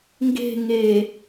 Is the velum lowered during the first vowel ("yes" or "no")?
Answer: no